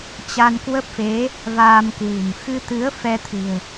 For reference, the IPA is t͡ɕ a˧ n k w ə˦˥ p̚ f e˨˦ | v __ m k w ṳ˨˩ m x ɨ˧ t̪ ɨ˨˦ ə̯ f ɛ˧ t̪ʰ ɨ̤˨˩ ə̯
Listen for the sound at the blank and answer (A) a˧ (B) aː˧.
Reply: B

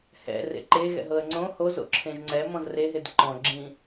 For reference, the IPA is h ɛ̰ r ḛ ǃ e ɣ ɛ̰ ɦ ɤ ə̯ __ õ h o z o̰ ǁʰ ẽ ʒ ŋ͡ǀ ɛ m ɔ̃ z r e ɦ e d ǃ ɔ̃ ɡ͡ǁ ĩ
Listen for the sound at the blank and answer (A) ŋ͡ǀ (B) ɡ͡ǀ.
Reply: A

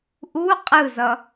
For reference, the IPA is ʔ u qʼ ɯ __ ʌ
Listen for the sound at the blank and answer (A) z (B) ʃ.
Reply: A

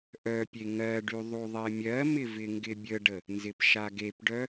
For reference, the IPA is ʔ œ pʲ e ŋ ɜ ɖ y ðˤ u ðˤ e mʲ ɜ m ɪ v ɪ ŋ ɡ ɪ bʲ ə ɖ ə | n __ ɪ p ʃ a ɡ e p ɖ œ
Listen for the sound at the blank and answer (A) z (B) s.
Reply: A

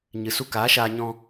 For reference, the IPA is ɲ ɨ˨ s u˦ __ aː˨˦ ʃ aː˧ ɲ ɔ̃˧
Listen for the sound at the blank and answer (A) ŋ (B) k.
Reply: B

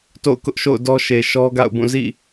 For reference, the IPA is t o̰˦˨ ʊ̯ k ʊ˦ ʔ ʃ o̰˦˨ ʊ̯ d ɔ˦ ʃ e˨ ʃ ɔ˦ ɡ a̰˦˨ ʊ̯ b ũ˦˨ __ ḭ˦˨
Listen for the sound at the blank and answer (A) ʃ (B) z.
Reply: B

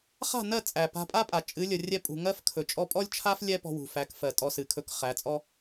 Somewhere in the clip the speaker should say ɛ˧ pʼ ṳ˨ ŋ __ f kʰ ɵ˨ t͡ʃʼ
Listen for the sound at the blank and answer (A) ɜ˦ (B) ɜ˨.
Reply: A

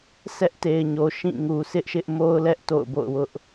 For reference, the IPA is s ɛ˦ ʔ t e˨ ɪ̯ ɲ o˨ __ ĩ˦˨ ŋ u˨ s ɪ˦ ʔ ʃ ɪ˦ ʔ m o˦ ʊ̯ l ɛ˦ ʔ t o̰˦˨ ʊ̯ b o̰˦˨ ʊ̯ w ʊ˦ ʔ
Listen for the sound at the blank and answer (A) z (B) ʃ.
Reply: B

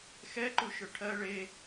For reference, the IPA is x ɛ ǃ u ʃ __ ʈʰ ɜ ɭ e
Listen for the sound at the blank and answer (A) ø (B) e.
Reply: A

